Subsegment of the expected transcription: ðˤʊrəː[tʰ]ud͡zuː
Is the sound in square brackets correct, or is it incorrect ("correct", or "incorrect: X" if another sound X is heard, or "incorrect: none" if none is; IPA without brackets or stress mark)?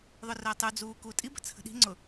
incorrect: tˤ